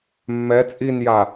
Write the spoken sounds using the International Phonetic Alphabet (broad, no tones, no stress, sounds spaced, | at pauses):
mː ɛ t͡sʼ i n j a